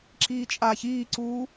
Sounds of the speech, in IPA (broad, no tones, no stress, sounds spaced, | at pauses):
ǁ iː t͡ʃʼ aː ç iː ǀ uː